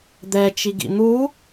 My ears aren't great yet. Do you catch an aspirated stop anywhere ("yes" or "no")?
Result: no